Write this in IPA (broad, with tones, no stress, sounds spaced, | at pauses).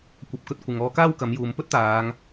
kʷ ɐ˨ p̚ k ɵ˨˥ t̚ kʷ ɪ˨˧ ŋ ɔː˧ k aː˥ w k ɐ˨˥ m j uː˨ m p ɵ˥ t̚ t̪ aː˨˧ ŋ